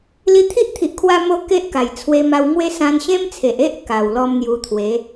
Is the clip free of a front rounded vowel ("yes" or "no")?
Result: yes